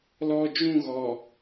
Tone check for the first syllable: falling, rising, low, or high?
low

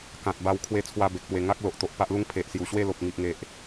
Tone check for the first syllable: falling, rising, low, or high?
low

